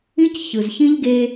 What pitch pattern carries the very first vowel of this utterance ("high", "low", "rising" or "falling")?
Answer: high